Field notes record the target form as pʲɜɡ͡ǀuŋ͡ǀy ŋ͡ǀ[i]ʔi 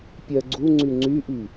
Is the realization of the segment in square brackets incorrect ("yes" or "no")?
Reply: yes